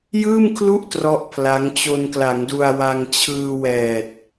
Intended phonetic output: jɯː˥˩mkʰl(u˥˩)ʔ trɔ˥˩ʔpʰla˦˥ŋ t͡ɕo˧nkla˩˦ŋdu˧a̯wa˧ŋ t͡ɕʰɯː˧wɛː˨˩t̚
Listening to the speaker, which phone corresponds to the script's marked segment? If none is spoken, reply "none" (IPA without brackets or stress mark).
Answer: u˥˩